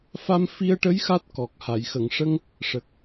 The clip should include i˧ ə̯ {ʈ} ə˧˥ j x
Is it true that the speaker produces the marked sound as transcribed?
yes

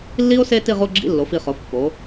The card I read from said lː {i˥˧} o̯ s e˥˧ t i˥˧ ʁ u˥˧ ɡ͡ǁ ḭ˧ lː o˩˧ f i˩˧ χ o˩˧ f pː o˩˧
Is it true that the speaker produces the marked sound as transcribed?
no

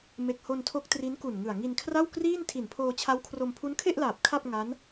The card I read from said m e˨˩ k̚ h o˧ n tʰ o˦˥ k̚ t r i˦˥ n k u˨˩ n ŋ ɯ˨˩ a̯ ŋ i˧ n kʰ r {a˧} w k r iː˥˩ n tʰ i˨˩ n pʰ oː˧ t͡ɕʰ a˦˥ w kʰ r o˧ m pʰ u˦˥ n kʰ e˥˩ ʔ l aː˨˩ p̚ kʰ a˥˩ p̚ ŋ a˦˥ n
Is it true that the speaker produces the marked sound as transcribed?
no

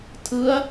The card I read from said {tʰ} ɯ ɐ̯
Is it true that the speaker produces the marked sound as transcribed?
yes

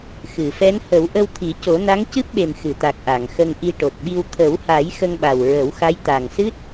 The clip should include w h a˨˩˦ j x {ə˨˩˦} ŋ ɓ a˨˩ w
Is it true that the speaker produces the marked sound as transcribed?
no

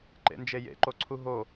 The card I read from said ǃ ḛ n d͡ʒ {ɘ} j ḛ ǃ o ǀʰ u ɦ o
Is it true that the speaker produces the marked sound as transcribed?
no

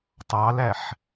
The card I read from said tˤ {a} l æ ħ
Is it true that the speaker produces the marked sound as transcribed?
no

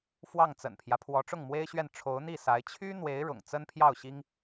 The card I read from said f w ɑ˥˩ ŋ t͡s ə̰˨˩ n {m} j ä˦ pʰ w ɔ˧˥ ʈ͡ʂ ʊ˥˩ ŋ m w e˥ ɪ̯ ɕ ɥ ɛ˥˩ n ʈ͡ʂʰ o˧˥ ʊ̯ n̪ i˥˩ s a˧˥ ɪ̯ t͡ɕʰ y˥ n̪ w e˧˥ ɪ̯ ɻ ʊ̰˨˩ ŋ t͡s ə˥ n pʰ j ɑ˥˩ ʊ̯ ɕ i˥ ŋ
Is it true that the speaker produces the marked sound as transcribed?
no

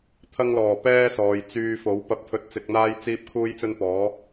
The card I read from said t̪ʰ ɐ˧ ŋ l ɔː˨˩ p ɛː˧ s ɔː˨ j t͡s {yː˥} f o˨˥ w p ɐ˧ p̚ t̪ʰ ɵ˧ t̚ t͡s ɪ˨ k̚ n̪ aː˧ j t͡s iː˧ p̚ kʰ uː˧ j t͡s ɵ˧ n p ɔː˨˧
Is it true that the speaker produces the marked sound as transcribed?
no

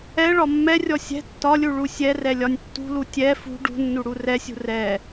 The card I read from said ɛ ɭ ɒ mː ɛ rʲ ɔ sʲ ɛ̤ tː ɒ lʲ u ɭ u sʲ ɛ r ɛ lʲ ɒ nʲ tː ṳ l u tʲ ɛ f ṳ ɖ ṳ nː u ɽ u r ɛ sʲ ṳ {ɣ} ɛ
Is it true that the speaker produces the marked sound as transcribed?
no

